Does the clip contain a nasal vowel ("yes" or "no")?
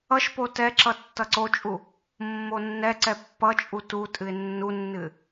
no